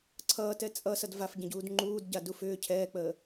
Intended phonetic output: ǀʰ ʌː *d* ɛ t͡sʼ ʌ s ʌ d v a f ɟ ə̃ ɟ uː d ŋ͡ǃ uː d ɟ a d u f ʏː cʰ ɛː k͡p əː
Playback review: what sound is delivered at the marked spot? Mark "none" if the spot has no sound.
t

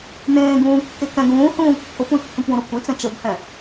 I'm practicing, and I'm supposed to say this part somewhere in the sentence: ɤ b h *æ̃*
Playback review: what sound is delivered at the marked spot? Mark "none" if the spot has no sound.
ɛ̃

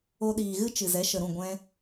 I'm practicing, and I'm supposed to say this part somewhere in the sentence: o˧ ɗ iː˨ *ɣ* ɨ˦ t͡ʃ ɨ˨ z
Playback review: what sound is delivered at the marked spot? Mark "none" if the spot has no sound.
ɣ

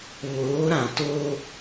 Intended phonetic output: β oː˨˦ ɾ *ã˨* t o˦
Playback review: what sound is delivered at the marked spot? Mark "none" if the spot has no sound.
ã˨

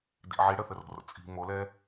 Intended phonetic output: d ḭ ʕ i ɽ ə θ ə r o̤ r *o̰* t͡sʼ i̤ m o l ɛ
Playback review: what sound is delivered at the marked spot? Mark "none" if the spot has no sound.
o̰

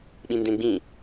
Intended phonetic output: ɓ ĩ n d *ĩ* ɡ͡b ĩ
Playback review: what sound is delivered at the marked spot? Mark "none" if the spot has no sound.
ẽ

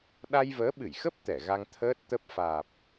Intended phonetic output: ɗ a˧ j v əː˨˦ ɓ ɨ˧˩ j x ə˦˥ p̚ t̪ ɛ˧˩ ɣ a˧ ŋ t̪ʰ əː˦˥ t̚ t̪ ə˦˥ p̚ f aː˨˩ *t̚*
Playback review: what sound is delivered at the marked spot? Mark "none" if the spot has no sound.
p̚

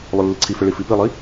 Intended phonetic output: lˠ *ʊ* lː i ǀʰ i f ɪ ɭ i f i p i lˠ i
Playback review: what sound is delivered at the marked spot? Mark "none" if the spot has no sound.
ʊ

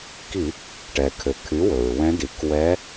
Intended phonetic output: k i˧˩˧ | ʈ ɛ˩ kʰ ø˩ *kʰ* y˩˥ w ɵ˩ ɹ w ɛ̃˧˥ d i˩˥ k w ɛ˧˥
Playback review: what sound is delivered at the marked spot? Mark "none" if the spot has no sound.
kʰ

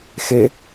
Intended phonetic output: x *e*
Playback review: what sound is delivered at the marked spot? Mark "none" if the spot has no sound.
e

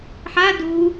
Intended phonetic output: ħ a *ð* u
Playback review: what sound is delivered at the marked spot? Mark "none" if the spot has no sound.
d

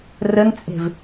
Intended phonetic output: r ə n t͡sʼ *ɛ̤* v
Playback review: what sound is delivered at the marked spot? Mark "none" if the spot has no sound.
e̤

